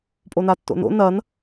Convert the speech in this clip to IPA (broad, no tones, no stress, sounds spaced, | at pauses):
pʼ o n a tː o̰ n o̰ n ɐ n